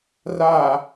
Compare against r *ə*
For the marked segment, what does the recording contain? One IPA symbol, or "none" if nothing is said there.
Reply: a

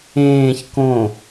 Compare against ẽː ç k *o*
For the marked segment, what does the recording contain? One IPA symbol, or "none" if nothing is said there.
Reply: õ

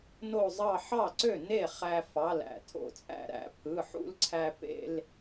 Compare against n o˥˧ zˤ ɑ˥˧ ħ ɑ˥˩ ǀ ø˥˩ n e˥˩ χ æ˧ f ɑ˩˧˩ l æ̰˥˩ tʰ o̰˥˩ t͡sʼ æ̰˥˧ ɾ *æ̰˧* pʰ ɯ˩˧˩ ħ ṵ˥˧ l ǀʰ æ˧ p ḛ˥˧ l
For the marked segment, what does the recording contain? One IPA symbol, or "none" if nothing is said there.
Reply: æ̰˧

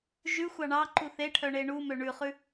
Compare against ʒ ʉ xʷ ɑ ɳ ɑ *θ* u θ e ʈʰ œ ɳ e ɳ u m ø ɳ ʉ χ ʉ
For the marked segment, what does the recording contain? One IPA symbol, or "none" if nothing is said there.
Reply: ǃ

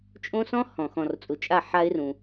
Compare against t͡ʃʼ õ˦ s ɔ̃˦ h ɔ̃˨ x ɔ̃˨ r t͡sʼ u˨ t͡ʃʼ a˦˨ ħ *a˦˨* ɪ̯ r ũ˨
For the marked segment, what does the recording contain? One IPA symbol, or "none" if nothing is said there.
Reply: a˦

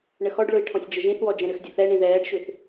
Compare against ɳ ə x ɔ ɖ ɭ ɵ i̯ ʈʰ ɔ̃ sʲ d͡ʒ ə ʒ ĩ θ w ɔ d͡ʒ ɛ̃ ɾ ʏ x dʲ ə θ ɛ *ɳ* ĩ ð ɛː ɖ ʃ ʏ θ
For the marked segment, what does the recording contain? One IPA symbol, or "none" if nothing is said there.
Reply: ɳ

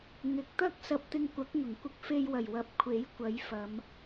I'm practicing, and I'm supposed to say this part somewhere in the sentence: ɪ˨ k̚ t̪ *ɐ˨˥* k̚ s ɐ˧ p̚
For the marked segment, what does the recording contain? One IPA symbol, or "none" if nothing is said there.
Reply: ɐ˥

